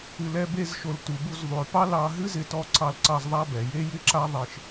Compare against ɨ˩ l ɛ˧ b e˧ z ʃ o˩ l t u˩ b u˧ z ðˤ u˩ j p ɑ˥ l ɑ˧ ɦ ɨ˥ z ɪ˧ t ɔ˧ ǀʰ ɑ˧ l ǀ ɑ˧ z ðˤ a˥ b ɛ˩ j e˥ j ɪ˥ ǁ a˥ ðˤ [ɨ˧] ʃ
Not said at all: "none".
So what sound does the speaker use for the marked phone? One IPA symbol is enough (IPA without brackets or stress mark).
e˧